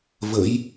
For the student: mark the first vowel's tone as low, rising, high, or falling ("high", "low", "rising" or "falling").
rising